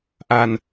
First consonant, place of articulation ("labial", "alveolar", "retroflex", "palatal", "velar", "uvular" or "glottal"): glottal